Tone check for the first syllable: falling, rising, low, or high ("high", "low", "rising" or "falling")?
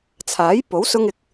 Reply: rising